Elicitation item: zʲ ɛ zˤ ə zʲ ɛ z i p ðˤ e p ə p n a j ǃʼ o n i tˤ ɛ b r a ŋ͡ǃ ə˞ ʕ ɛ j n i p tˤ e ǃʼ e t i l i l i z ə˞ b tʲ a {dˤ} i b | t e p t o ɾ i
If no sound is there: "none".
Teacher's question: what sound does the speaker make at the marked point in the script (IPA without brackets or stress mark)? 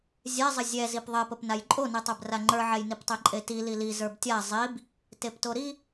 zˤ